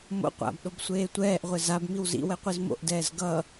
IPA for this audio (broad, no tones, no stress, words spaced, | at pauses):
mo̰ qʷa̰bɗob sʷeːtʷɛːʔʁʷe zabmiw zḭwɛ qʷizmo̰ʔdɛːz ɡʌ